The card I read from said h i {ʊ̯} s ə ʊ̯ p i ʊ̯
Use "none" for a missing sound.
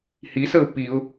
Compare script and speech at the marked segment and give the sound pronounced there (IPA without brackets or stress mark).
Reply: none